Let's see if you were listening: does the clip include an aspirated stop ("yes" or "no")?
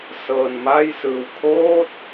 yes